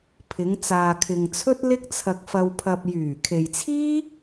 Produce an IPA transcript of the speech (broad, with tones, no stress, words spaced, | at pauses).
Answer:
pʰɪ˨˧ŋ t͡saː˨kʰɪ˨ŋt͡sʰɵ˥t̚ lɪ˥k̚t͡sʰɐ˧k̚ fɐ˧wpʰɐ˧p̚ jyː˨˩kʰe˨jt͡sʰiː˥